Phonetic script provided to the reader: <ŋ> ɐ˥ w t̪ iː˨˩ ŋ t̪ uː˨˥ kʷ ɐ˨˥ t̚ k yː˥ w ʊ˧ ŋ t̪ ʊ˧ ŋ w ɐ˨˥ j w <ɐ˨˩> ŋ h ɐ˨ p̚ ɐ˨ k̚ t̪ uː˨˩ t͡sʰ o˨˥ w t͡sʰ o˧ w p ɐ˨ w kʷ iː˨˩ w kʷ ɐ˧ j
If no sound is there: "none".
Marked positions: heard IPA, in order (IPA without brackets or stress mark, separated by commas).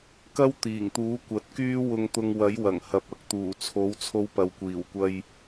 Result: k, ɐ˨˩